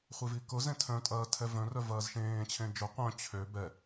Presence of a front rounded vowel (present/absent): present